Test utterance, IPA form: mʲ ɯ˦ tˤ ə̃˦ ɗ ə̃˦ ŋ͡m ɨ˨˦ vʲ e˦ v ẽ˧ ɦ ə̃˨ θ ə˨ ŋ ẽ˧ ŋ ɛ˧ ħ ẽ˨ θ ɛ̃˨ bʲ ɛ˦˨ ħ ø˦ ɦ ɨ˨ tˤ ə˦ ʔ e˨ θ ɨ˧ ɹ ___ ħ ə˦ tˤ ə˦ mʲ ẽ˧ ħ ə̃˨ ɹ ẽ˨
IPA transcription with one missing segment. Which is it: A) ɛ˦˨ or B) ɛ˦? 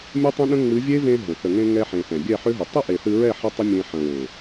A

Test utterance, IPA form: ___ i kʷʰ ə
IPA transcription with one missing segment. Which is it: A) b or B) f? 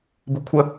A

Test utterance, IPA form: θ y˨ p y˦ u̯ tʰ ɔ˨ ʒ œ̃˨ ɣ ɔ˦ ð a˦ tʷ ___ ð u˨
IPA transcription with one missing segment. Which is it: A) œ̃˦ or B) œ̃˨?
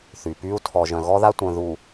B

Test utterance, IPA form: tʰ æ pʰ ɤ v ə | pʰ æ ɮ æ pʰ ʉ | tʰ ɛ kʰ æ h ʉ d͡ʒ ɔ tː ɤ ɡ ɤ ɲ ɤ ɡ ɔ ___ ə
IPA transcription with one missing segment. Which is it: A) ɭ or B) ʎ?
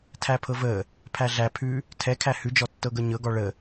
A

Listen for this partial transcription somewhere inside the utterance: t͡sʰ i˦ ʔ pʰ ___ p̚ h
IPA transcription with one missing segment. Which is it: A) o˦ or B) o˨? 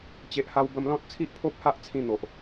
A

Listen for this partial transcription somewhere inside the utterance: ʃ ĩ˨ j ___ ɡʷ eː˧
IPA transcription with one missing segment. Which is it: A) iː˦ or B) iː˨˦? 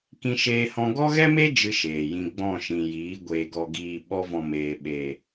B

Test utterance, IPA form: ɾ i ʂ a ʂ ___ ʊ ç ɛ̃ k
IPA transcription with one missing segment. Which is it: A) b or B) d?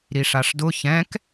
B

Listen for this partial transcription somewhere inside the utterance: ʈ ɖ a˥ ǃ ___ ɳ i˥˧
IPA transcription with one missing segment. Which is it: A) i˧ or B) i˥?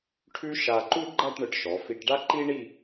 B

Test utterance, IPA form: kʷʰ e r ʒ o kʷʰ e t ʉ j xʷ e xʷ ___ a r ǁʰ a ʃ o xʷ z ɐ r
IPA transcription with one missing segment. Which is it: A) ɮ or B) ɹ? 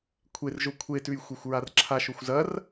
B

